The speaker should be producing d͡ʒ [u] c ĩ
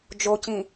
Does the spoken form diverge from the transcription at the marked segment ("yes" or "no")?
yes